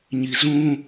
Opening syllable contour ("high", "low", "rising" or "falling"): low